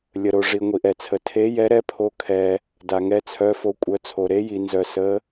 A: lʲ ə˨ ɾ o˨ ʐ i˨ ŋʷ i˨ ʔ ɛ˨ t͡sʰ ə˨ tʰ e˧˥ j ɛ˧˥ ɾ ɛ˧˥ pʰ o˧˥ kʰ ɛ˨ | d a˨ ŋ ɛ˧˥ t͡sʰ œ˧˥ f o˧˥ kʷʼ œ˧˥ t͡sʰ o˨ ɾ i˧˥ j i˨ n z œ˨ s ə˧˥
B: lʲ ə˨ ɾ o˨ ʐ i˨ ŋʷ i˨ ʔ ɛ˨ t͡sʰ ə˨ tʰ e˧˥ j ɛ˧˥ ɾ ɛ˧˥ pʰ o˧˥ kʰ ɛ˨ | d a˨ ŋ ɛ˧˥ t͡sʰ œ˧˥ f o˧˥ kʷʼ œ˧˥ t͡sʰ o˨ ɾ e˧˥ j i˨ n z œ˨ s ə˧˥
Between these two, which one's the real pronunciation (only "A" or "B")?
B